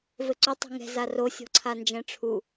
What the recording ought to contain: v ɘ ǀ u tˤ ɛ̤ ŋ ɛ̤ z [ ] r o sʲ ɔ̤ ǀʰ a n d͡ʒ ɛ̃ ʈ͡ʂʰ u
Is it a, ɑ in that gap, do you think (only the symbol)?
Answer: a